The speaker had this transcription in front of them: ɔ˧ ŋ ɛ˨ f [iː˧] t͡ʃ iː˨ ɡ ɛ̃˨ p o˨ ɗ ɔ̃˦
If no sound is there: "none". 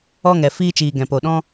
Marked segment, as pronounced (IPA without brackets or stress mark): iː˧